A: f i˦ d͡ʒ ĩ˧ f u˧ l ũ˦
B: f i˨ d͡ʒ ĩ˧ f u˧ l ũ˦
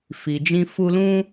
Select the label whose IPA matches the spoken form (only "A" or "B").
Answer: B